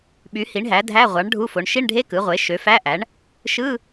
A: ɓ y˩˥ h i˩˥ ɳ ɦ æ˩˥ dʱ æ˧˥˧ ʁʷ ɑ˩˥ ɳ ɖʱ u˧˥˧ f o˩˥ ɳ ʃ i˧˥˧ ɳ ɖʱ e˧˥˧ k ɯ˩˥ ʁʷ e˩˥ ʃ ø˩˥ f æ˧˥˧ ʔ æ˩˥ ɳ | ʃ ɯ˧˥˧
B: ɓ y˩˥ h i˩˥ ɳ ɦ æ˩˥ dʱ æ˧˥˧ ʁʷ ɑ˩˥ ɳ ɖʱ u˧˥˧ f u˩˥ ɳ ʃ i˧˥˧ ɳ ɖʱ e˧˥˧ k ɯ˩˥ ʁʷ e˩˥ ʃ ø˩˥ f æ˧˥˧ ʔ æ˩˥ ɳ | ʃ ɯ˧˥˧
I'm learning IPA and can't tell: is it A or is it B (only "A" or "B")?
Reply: A